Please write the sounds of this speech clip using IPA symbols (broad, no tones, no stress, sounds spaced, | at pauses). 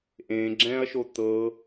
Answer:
ʔ ẽ ɡ͡ǁ ɛ̃ ɐ̯ ʃ o t̪ ɤ